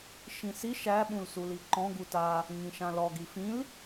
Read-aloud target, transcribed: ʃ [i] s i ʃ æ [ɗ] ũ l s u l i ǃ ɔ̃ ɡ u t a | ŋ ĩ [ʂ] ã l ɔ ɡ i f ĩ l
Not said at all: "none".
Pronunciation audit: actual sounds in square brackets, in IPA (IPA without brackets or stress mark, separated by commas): ĩ, ɓ, ʃ